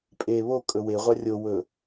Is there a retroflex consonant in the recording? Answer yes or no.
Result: no